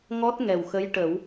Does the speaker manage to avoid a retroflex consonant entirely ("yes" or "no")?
no